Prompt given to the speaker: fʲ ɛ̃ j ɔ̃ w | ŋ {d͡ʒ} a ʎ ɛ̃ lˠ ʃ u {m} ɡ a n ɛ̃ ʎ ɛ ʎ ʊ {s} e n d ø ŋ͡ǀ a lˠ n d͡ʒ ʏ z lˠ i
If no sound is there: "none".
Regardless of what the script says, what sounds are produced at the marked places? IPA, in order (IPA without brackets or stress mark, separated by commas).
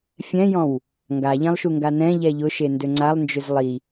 ɡ, ŋ, ʃ